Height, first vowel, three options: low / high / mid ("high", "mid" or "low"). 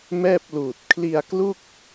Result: mid